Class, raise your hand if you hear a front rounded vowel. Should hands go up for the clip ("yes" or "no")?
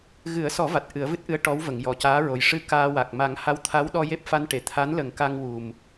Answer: no